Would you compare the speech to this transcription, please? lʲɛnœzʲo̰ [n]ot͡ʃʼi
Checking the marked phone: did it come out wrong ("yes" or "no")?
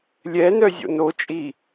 no